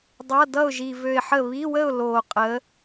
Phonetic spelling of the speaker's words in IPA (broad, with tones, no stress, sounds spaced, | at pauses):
dˤ ʌ˧˥˧ d ʌ˥˨ ʊ̯ ʒ i˧ v ø˧ ɪ̯ ħ ə˥˨ β i˧˥˧ w ə˥˨ ʊ̯ l oː˧ qʼ ə˧˥